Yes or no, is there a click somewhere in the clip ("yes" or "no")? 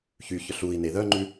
yes